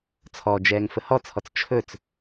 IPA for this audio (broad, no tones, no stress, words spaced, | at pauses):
t͡sʰɔd͡ʒɛːŋ fəhɔt͡sʰɔt͡s t͡ʃʰɵt͡s